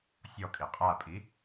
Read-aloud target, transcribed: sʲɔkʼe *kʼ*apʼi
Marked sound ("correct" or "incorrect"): incorrect